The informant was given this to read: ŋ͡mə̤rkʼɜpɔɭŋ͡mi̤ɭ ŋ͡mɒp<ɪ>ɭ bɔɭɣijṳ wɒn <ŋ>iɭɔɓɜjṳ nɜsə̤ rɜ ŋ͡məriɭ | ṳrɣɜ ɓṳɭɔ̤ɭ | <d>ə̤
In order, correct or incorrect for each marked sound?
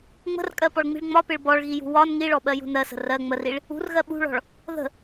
correct, correct, incorrect: ð

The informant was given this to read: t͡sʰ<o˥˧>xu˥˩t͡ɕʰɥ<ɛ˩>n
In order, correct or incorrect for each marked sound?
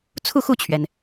incorrect: u˥˧, correct

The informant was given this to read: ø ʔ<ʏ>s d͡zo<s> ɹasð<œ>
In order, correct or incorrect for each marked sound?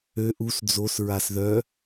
incorrect: u, correct, correct

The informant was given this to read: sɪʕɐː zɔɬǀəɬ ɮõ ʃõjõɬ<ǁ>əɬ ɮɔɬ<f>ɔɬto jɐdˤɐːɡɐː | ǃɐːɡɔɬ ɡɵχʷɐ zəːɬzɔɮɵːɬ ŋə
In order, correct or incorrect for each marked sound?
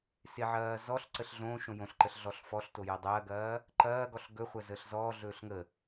incorrect: ǃ, correct

